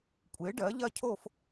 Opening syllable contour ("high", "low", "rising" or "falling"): rising